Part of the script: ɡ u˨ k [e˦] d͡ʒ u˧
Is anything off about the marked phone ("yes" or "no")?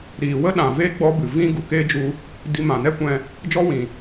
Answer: no